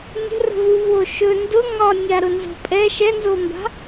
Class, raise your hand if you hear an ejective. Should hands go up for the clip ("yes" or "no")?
yes